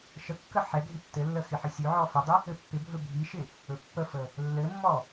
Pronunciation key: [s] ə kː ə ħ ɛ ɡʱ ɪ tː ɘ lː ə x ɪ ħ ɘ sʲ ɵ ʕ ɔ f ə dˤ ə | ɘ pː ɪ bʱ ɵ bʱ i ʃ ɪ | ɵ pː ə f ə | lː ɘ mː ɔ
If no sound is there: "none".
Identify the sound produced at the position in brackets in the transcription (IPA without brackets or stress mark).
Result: ʃ